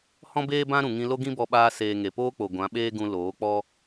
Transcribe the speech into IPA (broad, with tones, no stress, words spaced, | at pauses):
hɔ̃˦beː˦bã˦ ɾũ˨ŋĩ˧lo˦ ɡĩ˦bɔ˧ɓaː˧ seː˨ ŋe˨poː˦k͡po˨ ɡʷã˨˦ɓeː˦ɡũ˧ loː˨˦k͡pɔ˦